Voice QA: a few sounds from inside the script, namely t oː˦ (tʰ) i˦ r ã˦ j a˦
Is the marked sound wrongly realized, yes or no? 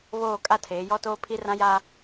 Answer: yes